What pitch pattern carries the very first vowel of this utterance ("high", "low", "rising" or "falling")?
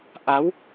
rising